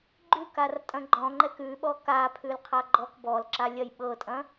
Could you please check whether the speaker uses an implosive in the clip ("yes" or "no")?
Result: yes